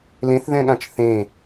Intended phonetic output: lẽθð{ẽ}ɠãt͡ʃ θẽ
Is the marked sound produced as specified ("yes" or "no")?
no